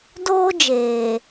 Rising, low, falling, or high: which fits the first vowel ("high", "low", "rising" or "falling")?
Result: high